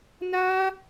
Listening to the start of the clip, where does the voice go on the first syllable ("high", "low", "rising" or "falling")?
high